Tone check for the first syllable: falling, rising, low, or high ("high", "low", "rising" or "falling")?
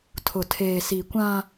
low